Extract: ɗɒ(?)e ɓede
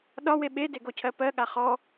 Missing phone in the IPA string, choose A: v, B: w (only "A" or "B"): B